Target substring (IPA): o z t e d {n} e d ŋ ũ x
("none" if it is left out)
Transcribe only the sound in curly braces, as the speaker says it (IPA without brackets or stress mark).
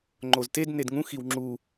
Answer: n